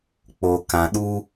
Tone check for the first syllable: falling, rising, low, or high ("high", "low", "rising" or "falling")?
low